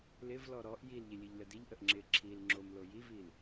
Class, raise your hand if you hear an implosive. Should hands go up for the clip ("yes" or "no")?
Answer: no